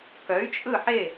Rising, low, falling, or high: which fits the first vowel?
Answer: rising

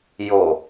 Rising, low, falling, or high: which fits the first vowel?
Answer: low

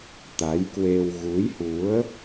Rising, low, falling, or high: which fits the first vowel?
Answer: rising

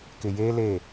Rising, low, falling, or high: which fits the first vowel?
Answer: low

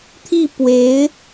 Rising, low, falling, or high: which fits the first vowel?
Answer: falling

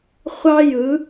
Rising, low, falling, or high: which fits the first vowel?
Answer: high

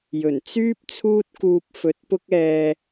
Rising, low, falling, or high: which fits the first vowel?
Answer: low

